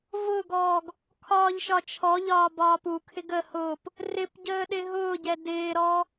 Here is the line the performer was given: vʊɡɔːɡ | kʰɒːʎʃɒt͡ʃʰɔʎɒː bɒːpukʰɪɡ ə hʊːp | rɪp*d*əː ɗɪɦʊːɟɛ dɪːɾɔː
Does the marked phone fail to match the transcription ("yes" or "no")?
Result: yes